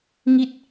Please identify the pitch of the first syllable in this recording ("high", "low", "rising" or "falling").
falling